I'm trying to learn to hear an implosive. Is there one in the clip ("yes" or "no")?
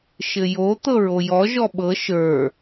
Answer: yes